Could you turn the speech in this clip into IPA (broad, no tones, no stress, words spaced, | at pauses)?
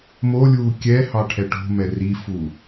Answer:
molʲuː kʲɛhɑ ʈʰɛʈo̤mɛ rifu